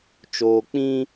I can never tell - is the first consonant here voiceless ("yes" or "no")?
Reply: yes